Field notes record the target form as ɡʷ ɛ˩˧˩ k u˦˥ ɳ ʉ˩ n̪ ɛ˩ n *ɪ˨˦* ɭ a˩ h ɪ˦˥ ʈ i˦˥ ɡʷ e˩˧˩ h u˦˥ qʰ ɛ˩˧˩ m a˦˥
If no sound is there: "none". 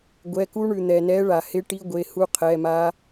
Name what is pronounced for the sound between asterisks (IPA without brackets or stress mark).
ɛ˨˦